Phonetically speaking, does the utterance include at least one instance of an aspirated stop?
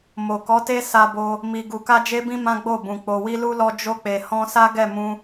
no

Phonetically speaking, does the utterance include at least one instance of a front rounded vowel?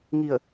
no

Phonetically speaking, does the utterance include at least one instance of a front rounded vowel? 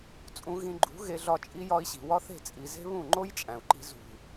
no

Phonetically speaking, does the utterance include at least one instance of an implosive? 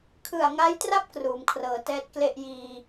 no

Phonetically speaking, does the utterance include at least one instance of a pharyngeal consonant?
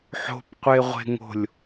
yes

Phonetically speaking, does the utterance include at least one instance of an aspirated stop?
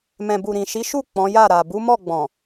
no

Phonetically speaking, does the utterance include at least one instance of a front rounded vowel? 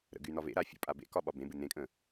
yes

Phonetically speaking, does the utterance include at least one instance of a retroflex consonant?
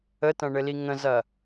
yes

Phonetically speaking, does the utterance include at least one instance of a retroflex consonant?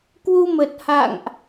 no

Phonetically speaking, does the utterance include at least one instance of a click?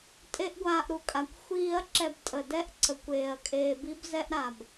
yes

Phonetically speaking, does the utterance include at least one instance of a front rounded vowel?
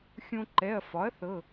no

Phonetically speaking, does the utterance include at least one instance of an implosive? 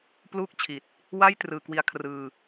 no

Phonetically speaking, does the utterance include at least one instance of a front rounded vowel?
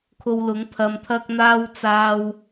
no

